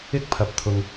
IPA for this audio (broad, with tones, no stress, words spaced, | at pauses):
ɪ˥k̚pʰɐ˧p̚t̪ʰʊ˧ŋ